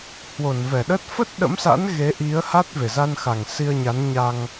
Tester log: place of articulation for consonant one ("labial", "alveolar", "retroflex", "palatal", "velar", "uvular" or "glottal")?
glottal